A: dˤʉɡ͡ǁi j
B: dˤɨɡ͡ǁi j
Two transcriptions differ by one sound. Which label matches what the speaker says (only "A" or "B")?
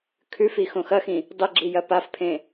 B